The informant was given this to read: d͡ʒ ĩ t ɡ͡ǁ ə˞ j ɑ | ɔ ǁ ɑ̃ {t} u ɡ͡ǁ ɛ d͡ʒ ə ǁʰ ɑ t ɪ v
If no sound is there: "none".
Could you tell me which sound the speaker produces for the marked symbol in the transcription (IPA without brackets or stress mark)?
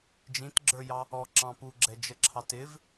p